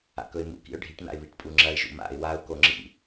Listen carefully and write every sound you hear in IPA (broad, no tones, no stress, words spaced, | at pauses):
a̰kɵɪ̯mṵ kḭʊ̯ɖʱiʈ na̰ɪ̯βiʈpʼuŋ͡ǁɐɪ̯ ʒṵma̰ɪ̯ waʊ̯ koŋ͡ǁḭ